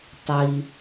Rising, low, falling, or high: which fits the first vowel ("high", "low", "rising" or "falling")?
low